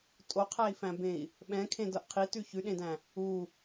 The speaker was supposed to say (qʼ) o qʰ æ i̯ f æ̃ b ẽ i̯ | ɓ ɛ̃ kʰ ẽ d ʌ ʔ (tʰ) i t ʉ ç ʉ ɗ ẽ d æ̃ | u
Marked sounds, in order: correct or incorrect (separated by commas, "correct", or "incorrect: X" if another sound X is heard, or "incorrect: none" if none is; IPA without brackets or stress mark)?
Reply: incorrect: tʼ, incorrect: qʰ